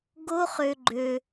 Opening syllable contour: high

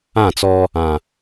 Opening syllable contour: falling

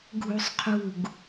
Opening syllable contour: high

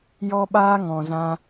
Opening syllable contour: high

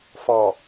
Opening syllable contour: low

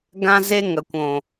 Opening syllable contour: high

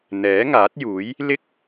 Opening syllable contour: rising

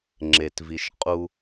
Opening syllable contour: low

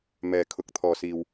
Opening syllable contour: low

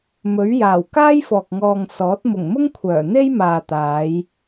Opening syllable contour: rising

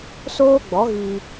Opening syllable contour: high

